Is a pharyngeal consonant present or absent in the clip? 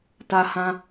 absent